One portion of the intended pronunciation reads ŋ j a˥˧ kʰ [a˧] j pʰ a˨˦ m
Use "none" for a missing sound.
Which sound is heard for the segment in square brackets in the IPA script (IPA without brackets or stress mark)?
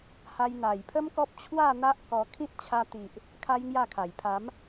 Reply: a˨˩